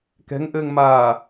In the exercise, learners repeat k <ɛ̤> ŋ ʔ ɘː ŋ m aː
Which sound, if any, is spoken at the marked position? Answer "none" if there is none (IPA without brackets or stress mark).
ɛ̤